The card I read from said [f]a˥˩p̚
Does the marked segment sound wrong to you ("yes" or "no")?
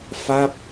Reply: no